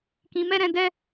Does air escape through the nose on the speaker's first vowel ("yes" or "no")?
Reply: yes